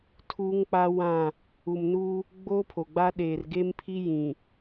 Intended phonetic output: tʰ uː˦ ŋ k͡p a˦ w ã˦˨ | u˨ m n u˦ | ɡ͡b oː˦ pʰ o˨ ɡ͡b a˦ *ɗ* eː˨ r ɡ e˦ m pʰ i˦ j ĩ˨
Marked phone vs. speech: correct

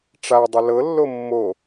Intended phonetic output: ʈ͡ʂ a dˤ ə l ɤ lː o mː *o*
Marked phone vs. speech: correct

